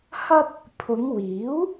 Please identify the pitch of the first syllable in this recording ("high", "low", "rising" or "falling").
high